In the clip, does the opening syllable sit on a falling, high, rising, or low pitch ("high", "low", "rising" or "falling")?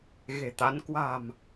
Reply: low